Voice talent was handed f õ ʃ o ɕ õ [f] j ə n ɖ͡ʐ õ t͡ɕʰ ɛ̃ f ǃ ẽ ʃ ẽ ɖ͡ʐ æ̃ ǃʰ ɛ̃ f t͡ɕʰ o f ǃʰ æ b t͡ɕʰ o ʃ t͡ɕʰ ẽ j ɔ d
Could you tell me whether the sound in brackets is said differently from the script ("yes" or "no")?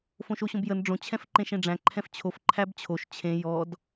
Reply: yes